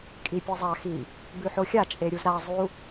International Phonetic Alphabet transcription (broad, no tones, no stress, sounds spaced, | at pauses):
kʼ i pʲ e zˤ a x i | b ʉ ħ o xʲ a t͡ʃʼ e ɾʲ u z ɾ a zˤ u